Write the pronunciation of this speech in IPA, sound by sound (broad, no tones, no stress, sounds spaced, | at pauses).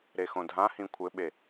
ɾ e x õ dʱ ã h ĩ kʷʰ ɘ ɓ e